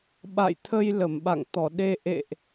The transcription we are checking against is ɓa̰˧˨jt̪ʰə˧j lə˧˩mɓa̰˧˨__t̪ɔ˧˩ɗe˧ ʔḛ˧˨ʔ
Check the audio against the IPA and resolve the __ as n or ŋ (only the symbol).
ŋ